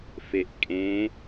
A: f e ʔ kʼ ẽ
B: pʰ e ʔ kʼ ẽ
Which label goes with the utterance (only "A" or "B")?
A